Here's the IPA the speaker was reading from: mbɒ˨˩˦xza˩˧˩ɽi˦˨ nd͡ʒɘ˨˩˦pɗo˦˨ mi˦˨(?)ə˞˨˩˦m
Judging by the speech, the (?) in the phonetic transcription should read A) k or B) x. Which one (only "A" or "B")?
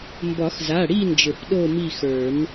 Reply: B